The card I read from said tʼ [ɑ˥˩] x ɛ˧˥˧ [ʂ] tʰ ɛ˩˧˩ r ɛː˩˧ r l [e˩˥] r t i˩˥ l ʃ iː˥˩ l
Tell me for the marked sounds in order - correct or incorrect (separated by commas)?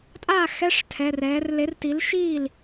incorrect, correct, correct